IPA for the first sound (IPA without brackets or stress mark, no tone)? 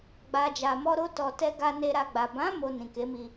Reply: ɡ͡b